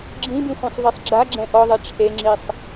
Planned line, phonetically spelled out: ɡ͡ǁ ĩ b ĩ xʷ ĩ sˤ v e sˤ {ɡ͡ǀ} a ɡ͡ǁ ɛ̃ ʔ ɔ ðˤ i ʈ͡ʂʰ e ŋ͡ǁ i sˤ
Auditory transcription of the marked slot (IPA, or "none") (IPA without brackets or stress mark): ɡ͡ǁ